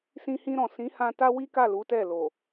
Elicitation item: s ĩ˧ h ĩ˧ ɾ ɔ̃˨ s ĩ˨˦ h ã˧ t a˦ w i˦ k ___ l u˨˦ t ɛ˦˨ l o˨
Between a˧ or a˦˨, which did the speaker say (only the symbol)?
a˦˨